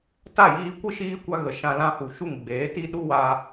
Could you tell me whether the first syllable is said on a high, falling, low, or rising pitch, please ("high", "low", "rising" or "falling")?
falling